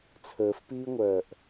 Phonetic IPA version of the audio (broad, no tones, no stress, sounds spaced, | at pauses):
t͡sʰ əː f p iː ŋʷ œː ʔ